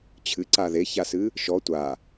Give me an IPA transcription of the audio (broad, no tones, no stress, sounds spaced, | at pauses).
t͡ɕʰ ɨ ǀ a ð e ç a s ɨ | ʃ ɔ tʷ a